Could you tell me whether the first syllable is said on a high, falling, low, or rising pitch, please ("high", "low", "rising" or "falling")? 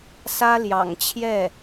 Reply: high